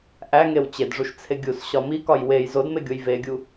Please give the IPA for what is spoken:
ʔ æ ŋ e w t͡ɕ e d ʐ u ʃ t͡sʰ e ɡʲ u s ɕ ɒ m i k ɒ j w e j z o d m e ɡʲ o j v e ɡʲ u

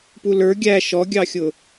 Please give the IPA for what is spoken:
p u l ə˞ ɡʲ æ ʃ ɔ ɡʲ ɑ xʲ ʊ

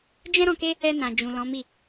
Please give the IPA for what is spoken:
d͡ʒ ɛ̃˦ ɾ ɔ̃˧ k e˦ | ɛ˧ n ã˨ d͡ʒ ũ˨ l ɔ̃˨˦ m i˦˨

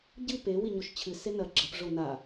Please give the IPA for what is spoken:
ɟ ɨ p e w i ɲ o ʃ t͡ɕʰ ɨ s e n ɐ ɡ͡ǁ ɐ p ʐ o n a

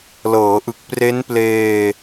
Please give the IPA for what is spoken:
l ɤː˩˦ ʔ ɯ˨˩ k̚ p r e˦˥ n p l eː˧

